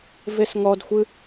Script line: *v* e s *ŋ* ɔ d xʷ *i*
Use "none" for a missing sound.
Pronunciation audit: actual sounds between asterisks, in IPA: v, ŋ, ɨ

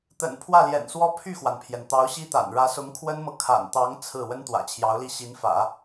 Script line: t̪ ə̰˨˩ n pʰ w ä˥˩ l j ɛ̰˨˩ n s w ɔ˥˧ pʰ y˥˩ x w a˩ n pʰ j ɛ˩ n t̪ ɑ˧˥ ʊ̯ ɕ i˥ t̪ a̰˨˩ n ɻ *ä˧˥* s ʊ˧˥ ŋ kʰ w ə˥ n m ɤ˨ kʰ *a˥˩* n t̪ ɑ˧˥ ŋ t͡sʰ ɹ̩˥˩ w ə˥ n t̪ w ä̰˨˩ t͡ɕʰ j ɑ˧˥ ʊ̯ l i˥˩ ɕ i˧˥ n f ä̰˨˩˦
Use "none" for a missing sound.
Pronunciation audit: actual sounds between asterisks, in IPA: ä˧˥, a̰˨˩

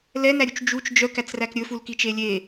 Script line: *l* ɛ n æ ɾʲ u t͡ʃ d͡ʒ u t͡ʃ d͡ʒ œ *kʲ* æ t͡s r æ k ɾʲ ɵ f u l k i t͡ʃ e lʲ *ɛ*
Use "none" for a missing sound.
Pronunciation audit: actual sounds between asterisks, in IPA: l, k, e

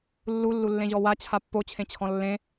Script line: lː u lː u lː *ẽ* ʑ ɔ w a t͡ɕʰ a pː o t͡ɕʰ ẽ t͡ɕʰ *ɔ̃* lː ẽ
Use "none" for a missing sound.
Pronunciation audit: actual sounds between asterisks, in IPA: ẽ, ɔ̃

